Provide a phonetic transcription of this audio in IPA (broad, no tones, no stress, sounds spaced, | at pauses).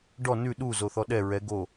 ɖ ɔ n ʉ ɗ u z o θ ɔ ɗ ɛ ɹ ɛ ɡ o